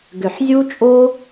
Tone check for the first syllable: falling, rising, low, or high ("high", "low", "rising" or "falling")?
low